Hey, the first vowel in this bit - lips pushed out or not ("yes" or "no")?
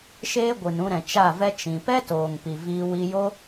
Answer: no